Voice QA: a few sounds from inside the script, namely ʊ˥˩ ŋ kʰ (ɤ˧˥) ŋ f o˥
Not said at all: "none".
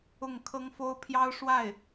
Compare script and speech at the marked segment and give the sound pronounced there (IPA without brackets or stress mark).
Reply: ɤ˥